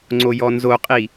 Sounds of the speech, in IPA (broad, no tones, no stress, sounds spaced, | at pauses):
ŋ͡ǀ o j ɔ n z o qʼ i